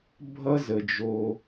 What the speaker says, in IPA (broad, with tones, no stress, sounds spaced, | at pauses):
bʱ ʌ˦ z ə˨ d͡ʒ o˦